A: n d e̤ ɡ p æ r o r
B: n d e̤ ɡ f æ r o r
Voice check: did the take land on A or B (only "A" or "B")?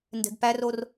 A